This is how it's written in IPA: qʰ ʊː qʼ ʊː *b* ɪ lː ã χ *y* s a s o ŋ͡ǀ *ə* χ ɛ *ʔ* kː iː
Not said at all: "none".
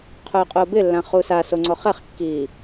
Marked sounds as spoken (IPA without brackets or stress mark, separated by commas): b, u, ɔ, χ